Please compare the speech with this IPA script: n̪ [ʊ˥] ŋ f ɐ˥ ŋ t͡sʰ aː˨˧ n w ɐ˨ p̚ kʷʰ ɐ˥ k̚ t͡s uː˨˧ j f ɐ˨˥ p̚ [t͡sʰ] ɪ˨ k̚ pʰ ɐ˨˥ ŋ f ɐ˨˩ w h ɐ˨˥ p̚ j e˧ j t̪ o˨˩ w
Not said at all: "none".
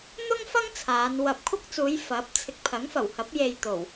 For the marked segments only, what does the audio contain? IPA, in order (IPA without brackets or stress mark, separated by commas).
ʊ˥, t͡sʰ